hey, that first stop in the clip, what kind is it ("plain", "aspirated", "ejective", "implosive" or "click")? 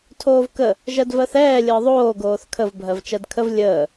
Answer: aspirated